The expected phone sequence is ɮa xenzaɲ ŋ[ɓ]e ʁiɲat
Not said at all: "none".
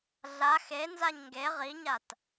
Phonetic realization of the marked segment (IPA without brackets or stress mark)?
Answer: ɡ